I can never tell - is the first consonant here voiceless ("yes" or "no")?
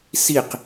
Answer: yes